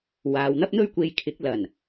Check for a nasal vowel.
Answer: absent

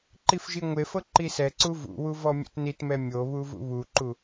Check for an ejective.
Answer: absent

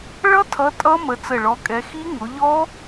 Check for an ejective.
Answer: present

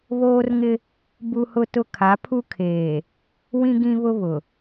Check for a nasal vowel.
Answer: present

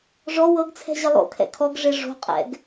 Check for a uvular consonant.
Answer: present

